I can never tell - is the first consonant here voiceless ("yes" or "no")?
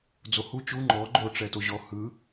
no